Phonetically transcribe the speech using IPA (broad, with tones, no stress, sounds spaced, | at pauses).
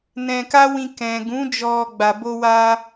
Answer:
n ɛ̃˧ k a˦ w ĩ˧ k ɛ̃˨ ɡ ũ˨˦ d͡ʒ ɔ˧ ɡ͡b a˨ b o˧ w a˧